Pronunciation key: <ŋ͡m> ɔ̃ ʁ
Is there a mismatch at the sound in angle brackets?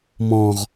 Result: yes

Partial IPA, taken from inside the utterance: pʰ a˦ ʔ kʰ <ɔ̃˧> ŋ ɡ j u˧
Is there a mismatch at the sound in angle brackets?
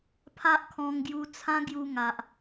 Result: no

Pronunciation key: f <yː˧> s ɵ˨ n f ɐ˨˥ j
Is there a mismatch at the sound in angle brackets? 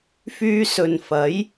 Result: no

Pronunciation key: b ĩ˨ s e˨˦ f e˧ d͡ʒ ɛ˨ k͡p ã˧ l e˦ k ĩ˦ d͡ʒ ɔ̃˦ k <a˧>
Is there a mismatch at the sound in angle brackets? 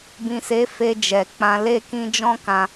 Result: yes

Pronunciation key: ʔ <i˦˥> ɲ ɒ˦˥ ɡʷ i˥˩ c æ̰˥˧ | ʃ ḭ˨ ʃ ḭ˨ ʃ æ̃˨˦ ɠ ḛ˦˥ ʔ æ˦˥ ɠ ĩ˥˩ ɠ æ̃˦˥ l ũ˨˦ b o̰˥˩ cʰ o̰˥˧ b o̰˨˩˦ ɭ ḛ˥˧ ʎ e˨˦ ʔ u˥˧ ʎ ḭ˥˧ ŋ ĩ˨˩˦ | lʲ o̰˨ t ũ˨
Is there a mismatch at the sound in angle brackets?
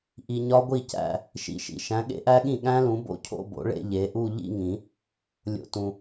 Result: yes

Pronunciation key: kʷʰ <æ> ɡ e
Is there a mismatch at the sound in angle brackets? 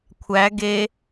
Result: no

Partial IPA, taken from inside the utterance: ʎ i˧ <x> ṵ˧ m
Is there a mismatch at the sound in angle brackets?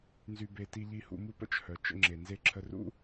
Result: yes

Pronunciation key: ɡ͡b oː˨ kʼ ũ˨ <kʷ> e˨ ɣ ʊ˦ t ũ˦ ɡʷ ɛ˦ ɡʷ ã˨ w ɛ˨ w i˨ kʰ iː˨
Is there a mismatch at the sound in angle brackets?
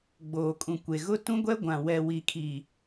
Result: no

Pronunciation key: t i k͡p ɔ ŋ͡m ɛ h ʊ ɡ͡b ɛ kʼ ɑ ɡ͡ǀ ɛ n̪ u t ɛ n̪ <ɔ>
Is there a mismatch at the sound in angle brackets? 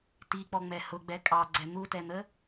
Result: yes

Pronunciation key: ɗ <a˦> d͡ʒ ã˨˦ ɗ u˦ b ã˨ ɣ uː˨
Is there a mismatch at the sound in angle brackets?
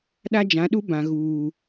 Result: no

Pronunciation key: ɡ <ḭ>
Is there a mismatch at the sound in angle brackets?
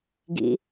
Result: no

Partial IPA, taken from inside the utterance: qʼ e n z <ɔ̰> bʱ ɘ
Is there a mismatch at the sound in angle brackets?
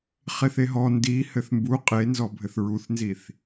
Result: yes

